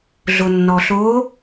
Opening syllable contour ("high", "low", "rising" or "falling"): low